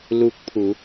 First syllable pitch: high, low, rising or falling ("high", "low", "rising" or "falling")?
rising